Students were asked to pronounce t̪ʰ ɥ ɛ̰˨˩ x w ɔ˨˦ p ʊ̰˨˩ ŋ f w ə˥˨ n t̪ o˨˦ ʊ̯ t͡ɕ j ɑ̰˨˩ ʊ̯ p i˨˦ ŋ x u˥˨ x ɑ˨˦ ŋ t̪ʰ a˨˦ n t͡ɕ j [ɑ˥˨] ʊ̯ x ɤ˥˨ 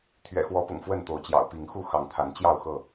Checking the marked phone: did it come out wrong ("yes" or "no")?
no